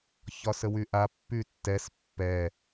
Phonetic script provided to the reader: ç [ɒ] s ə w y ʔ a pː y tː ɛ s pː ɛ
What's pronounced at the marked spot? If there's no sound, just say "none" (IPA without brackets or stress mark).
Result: ɒ